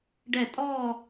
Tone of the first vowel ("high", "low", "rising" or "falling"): falling